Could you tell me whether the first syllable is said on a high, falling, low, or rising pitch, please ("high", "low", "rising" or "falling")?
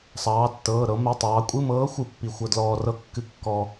rising